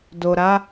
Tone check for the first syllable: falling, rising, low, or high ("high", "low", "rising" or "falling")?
low